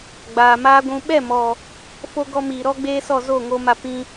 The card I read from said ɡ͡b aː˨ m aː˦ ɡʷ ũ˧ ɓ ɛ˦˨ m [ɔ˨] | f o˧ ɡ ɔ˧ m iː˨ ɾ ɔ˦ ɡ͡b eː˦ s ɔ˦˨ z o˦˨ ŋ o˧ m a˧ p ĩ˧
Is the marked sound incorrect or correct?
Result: correct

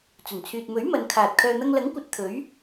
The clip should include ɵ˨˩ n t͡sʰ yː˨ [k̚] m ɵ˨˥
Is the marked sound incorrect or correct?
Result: incorrect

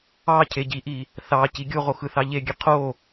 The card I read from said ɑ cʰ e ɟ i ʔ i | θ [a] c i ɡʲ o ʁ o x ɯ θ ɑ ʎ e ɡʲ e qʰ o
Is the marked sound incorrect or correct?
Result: incorrect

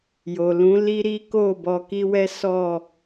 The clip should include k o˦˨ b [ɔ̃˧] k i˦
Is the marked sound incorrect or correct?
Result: incorrect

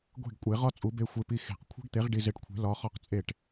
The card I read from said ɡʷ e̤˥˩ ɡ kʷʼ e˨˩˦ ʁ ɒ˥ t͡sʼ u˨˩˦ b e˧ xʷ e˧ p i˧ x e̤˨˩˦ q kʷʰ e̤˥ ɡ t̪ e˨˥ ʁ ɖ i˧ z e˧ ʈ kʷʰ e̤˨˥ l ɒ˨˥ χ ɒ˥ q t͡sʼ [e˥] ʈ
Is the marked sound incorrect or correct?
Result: incorrect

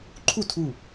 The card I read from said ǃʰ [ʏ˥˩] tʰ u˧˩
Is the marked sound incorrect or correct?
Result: incorrect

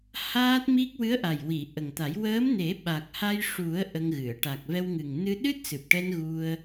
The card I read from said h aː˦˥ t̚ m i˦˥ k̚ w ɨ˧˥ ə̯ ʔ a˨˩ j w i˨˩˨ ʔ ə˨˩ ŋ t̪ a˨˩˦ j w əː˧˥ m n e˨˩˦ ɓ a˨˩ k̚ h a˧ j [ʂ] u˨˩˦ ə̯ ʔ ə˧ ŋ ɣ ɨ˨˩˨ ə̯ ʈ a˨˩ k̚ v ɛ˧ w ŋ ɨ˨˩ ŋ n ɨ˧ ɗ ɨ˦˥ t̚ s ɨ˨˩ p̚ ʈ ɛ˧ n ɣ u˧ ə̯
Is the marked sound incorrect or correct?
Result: correct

